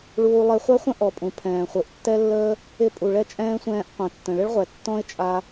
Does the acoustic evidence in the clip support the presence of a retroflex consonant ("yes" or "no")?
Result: yes